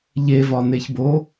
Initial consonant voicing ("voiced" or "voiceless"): voiced